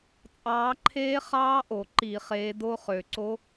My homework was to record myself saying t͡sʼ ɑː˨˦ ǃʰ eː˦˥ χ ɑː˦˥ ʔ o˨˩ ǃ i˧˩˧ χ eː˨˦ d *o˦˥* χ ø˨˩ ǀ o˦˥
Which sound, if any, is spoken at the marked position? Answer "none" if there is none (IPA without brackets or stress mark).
o˦˥